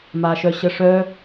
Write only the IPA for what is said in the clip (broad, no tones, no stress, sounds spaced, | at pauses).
m a ʃ œ ɕ ə ʂ œ